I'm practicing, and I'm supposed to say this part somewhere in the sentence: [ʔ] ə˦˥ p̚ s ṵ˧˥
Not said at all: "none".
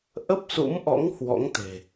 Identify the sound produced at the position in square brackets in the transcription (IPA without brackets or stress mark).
ʔ